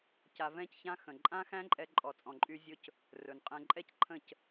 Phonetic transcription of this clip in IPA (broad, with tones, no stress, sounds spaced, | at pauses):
c a˧ v ɛ̃˦ c ç ã˦ x ə̃˨ ǃʼ ã˦ x æ̃˦ ǃʼ ɛ˧ ǃʼ ɔ˨ t͡sʼ ɔ̃˨ ǃʼ y˧ zʲ ɵ˦ c | r ɵ˨ n qʼ ɛ̃˧ ǃʼ ɛ˦ c ǃʰ ə̃˦˨ c